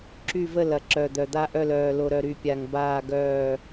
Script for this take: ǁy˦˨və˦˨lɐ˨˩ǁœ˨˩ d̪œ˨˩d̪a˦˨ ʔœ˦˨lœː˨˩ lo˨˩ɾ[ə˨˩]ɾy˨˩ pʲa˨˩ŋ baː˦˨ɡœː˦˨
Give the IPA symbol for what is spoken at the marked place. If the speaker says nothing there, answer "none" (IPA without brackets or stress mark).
œ˨˩